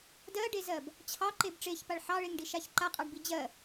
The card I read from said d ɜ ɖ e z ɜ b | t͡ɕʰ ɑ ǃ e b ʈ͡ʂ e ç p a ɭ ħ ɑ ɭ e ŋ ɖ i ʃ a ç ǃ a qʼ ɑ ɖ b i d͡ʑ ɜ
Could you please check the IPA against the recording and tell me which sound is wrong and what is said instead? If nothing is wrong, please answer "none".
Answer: none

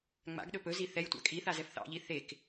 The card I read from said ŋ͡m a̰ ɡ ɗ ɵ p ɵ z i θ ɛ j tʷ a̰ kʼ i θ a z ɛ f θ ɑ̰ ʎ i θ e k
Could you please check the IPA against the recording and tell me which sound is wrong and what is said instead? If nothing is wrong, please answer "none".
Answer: none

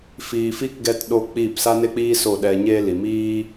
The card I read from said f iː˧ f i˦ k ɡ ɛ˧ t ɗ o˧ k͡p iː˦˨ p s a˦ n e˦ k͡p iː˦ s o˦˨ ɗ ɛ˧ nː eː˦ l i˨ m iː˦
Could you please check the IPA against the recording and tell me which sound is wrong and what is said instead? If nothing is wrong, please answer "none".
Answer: nː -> ɲ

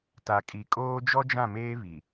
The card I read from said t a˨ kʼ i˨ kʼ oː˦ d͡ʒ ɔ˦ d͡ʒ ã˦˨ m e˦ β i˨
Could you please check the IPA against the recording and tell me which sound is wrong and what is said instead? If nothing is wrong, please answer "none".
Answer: e˦ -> eː˦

